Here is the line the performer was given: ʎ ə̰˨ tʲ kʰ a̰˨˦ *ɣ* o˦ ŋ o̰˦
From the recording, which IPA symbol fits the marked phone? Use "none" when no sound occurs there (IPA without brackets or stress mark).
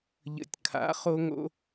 χ